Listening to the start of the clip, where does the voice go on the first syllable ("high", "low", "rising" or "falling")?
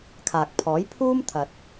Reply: low